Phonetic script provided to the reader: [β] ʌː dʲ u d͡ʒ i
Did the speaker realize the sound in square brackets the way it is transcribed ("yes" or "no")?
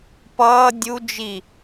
no